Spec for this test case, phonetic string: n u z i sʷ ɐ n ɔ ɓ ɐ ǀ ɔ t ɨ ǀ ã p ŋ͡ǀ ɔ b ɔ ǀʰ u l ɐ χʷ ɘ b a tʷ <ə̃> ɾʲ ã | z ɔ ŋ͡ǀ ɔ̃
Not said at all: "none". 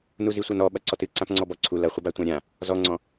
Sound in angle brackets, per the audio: ã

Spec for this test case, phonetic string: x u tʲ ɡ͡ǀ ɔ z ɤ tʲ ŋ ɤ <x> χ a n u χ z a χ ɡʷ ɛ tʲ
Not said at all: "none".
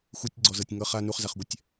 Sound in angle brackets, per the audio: none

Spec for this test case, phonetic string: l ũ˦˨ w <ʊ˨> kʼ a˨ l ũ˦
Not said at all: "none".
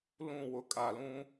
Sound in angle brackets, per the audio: ʊ˨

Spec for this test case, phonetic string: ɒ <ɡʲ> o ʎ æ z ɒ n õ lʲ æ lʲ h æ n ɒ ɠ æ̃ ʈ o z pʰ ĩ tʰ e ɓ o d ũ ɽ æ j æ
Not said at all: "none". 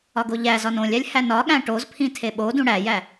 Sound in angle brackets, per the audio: ɡ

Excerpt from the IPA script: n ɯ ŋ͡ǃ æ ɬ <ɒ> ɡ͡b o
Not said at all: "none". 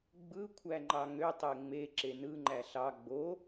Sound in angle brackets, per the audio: ɑ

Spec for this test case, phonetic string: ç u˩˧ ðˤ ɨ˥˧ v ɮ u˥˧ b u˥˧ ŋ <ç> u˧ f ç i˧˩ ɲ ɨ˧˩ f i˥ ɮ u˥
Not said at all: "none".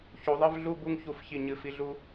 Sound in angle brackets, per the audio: ç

